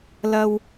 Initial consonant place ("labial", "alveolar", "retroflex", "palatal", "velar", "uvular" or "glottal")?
alveolar